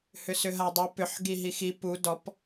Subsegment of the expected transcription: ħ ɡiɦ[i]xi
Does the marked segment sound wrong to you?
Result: no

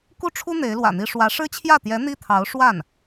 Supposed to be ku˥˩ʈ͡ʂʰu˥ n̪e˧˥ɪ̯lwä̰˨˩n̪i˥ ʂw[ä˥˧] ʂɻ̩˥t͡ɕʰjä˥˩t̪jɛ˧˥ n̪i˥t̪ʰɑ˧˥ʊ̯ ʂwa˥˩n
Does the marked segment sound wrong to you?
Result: yes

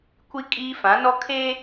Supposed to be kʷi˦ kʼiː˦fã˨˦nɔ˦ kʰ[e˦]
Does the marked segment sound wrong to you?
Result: no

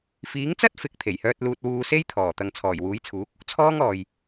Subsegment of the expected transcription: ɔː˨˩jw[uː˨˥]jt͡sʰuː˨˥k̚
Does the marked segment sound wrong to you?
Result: no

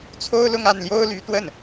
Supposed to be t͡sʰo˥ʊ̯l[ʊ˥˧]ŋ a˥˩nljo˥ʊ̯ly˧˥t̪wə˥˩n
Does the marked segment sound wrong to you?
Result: no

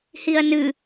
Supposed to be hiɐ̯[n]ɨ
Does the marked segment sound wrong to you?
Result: no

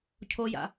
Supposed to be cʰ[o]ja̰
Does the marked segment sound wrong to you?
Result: no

